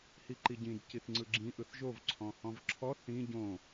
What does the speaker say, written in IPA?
h i ǃ i ɟ ĩ d c i θ ŋ͡ǀ ɯ ɡ͡ǁ ĩ ʔ ɯ θ ʒ o v ǀʰ ɔ̃ h ɔ̃ v ǁʰ ɔ θ ĩ ɟ õ

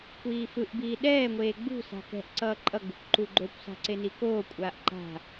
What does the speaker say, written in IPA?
kʷ iː f ɯ ʔ b iː ɗ ɛː ŋʷ eː ɡ͡b ṳ s a̤ k ɛ̤ ʔ ǀ ʌː ǃʼ ʌ ɡ͡b ṳ kʷ ǃ u ɡ͡ǃ o kʷ s a̤ ǀ e n i k oː kʷʼ aː ʔ ǃ a̤

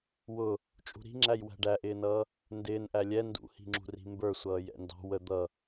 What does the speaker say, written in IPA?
w ʊ | t͡ʃʼ ṳ ɾ i̤ ŋ͡ǁ æ j w æ̤ ɖ æ ʔ ɪː n ʌː | n d ɪː n ʔ æ lʲ ɛ n d ṵ h i̤ ŋ͡ǁ ṳ r i̤ m b ə˞ sʷ ʌː j ɛ̰ n d ɑ̤ w ə d̪ ʌ

